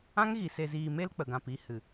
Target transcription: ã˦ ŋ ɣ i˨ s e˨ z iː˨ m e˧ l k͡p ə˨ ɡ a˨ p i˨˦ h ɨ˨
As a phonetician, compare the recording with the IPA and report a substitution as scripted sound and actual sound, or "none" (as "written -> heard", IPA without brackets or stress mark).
a˨ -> ã˨